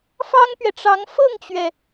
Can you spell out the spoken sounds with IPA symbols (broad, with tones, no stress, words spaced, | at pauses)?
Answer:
fɑ˥ŋpɥɛ˨ʈ͡ʂɑ˧˥ŋ fɤ˥˩ŋt͡ɕɥɛ˩